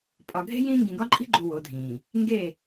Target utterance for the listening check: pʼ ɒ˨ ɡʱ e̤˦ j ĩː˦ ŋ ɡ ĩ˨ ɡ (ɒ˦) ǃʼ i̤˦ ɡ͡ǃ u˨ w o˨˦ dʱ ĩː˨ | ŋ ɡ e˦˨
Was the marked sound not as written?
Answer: no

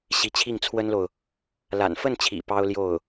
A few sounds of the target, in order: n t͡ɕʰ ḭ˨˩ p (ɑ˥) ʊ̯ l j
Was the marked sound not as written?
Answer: no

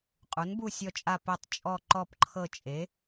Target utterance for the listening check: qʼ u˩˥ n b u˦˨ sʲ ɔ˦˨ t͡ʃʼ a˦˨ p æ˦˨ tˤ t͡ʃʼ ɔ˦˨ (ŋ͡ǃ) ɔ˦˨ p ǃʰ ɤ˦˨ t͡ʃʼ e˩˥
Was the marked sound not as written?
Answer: yes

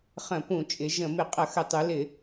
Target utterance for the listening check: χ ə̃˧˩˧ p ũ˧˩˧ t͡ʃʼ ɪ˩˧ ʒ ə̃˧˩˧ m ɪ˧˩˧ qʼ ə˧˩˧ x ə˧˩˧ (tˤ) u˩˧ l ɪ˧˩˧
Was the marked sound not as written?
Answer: no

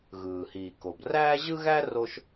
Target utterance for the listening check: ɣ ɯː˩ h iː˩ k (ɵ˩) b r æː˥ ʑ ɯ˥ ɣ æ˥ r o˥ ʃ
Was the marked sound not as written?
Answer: yes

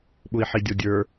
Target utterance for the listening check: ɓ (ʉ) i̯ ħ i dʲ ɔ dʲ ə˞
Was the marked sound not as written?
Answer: yes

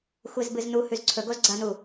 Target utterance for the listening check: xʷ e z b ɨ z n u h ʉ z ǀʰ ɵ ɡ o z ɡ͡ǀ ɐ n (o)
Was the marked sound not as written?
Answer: yes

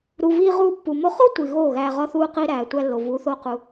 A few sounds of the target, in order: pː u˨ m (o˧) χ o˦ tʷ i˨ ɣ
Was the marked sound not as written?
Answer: no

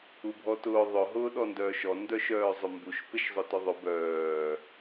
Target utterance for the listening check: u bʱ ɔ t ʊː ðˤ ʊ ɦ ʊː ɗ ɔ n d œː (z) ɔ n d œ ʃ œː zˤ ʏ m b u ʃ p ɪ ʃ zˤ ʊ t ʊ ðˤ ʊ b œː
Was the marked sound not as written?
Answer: yes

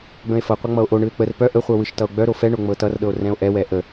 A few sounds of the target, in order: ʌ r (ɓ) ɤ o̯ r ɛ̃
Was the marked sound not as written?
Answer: yes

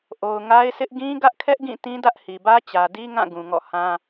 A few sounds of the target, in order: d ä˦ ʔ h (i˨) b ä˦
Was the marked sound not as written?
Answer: no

